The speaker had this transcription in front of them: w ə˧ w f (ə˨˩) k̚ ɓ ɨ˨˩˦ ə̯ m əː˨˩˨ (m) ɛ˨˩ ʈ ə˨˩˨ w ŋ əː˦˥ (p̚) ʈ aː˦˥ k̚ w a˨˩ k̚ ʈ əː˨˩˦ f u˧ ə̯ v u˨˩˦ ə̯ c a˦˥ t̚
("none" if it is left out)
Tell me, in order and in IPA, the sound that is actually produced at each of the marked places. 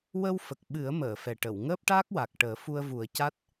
ə˨˩, f, p̚

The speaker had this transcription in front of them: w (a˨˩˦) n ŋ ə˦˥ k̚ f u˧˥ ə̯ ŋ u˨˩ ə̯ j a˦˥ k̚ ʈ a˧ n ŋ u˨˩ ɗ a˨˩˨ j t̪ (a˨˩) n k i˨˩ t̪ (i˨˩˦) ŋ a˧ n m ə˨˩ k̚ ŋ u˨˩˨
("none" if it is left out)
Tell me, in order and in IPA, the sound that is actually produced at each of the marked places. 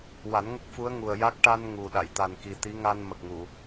a˨˩˦, a˨˩, i˧˥

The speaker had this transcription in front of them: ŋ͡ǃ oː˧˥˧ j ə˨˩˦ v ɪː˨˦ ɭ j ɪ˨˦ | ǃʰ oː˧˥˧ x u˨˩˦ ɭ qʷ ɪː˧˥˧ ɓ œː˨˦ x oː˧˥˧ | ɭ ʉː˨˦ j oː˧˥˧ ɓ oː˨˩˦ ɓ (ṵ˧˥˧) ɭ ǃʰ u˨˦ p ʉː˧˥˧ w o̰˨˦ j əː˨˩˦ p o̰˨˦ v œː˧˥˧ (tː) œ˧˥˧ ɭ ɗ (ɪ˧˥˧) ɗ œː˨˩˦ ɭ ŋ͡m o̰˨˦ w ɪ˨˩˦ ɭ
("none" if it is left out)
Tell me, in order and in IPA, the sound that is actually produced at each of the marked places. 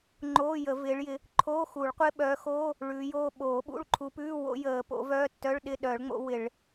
ṵ˧˥˧, tː, ɪ˧˥˧

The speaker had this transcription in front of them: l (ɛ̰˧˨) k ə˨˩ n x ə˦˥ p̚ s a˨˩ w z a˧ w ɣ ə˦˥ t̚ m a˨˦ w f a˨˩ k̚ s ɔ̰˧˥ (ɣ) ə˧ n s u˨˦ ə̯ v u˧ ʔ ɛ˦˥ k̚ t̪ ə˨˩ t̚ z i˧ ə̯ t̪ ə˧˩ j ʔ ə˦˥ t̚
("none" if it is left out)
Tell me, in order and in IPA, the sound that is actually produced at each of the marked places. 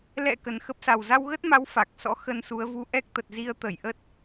ɛ̰˧˨, x

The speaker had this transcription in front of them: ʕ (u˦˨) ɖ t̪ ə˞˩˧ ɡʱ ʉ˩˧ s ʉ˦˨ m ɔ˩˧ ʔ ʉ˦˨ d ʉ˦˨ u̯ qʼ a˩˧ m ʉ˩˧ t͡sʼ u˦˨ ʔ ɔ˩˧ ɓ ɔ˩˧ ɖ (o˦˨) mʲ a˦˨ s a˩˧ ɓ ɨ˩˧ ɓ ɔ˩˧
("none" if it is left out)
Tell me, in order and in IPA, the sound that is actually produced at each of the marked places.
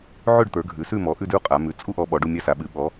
ʉ˦˨, u˦˨

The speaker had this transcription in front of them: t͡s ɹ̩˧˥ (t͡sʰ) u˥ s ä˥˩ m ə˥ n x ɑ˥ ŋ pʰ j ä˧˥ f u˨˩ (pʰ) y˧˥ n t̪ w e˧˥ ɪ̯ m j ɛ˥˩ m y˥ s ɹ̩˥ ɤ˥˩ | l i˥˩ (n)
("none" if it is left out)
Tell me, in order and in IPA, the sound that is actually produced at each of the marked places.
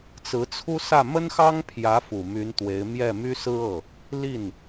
t͡sʰ, m, n

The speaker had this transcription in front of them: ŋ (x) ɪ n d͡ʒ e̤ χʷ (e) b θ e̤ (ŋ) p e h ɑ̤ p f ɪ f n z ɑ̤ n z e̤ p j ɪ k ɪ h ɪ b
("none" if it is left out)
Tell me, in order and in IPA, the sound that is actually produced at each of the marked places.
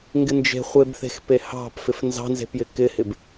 ɡ, e, x

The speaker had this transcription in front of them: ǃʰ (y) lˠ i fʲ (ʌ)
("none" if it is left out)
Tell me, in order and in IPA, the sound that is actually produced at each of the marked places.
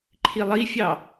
i, ɑ

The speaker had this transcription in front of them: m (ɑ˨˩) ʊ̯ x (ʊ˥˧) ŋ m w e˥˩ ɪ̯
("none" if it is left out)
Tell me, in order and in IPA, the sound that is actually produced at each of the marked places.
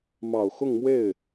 ɑ˨˩, ʊ˥˧

